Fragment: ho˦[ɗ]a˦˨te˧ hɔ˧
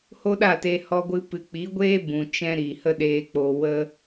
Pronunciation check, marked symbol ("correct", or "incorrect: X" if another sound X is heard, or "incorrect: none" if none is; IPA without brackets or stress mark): correct